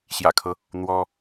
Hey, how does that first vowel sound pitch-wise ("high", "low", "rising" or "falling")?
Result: low